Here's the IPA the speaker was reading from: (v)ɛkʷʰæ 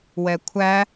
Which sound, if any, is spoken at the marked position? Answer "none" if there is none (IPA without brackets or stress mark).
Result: w